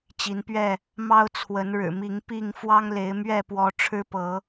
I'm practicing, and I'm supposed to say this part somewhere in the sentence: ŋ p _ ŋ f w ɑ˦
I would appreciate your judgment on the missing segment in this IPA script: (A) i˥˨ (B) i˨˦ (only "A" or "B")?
A